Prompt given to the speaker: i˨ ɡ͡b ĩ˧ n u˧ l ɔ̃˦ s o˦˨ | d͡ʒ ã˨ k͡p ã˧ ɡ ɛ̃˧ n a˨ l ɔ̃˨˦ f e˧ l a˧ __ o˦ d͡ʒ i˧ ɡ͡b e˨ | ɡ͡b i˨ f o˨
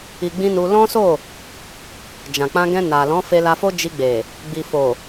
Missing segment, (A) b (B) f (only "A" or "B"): B